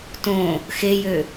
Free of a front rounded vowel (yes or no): no